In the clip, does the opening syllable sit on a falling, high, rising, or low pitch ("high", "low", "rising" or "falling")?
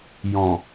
low